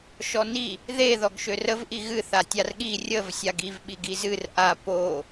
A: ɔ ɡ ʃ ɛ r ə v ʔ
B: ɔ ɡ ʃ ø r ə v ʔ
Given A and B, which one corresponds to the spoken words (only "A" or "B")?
B